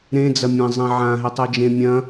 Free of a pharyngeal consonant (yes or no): no